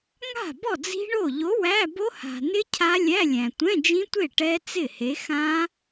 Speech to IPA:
ŋ a̤˥˩ b ɔ˥˩ d͡z i̤˦˥ ɳ o˥˩ ʎ o˨˥ w æ˧˥˧ b o˦˥ h a̤˨ n ɪ˦˥ cʰ a˦˥ lʲ æ˧˥˧ lʲ æ̃˨ tʷ ɛ̃˧˥˧ d͡ʒ ĩ˦˥ tʷ e˥˩ ʈ ɛ˦˥ t͡s ɪ˥˩ h e˨˥ x ã˦˥

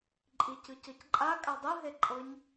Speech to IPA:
ǃʼ i c ɯ c ɤ c ǃʼ a kʼ a dˤ ɯ ɦ e ǃʼ ɤ ɲ

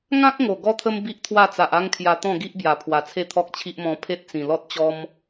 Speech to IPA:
ŋ ã˦ k̚ ŋ o˨˩ ɡ ɔ˧ t̪ʰ ə˧ m b i˦ ʔ t̪ʰ w a˥˧ t͡s a˨ ʔ a˦ ŋ kʰ j a˧ t̪ ɔ̃˥˧ ɡ i˦ ʔ b j a˨˩ pʰ w a˨˩ t͡sʰ e˥˧ t̪ʰ ɔ˦ k̚ t͡ɕʰ i˦ ʔ m ɔ̃˧ pʰ e˦ t̚ t͡s ĩ˨˩ l ɔ˦ t̚ t͡ɕ ɔ˦ m

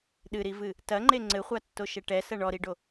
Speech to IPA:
ɗ ɨ ɾ i v ɨ | t ɐ ŋ͡ǃ e ŋ͡ǀ ɘ χʷ a tː o ʃ ɛ ʈ ɛ s ɐ ɳ ɔ ɾ i ɖ o

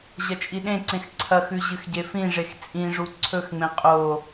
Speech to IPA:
ʑ ɐ t͡ʃʼ i ɗ ẽ ǀ ẽ x ǀʰ ɐ x ʉ ʑ ɨ x ɟ e f ĩ ʐ e x t͡sʼ ĩ ʐ u ǀʰ ɵ x ŋ͡m ẽ qʼ o

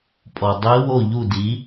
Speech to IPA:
pʼ ɔ˩ dˤ i˧˥ w o˥˩ ʎ u˥˩ d i˩˥

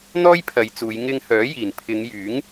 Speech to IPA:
n̪ ɔː˥ j pʰ ɐ˨˧ j t͡s uː˨˧ j ŋ ɪ˧ ŋ h œː˨˥ j iː˨˩ n pʰ ɪ˨˧ ŋ j yː˨˥ ŋ

